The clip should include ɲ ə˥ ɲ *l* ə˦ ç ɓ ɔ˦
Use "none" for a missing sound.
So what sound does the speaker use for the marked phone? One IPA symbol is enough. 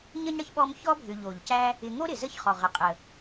ɽ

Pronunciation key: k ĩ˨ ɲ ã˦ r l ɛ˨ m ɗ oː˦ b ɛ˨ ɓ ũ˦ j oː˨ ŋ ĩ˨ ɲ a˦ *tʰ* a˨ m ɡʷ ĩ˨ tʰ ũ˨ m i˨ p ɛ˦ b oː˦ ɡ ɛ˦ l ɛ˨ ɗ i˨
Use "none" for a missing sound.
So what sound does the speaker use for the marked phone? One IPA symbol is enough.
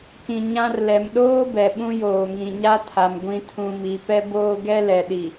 tʰ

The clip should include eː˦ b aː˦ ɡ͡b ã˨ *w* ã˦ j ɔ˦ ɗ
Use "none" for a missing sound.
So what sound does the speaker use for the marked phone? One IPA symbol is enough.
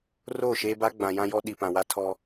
j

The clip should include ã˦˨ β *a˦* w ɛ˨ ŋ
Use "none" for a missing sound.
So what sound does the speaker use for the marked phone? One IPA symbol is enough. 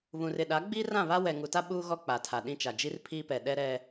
a˦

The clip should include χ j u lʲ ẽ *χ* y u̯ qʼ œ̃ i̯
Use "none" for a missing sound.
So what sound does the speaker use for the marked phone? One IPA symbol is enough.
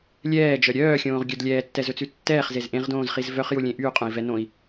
ʔ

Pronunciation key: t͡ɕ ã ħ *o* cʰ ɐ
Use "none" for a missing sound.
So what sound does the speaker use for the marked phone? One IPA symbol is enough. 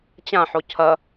o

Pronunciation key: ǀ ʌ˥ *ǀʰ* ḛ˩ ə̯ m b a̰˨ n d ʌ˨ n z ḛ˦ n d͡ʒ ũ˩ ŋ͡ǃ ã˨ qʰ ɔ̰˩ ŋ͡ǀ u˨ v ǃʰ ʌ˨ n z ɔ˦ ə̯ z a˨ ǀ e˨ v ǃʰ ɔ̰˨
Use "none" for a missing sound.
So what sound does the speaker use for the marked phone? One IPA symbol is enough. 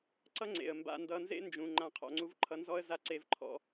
ŋ͡ǀ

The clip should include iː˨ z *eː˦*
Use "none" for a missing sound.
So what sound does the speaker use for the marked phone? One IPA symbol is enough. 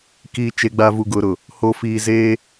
eː˦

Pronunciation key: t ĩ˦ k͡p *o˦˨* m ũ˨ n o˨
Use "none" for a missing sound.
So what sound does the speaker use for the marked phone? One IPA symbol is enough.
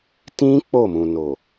o˦˨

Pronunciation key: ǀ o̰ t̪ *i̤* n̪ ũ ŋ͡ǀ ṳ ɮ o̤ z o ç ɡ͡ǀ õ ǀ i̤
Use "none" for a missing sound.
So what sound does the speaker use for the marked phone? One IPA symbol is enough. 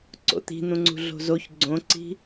i̤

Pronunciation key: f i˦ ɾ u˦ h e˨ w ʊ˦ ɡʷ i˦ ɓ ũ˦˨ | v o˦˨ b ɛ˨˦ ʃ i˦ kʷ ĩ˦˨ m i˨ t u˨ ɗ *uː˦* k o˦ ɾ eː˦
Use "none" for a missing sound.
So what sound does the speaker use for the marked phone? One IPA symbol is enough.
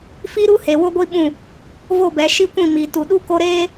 u˦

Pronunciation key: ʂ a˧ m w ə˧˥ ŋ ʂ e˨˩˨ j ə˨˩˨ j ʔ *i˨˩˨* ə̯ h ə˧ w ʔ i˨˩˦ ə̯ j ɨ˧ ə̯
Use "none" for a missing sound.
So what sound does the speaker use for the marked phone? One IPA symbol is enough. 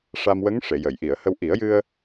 i˨˩˨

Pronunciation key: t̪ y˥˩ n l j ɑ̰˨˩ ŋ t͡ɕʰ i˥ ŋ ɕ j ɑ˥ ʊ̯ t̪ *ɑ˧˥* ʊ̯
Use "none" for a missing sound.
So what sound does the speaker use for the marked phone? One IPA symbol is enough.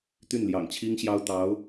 ɑ˧˥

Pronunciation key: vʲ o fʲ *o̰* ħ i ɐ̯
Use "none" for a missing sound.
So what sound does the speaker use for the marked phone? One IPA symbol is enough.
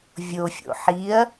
o̰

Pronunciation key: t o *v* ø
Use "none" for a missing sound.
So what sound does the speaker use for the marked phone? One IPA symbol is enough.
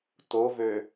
v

